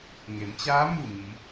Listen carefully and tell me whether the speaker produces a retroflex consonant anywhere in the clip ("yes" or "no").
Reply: no